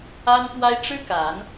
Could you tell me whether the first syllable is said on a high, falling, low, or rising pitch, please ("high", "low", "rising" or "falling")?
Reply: high